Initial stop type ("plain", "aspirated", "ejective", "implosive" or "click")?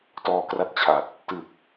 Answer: plain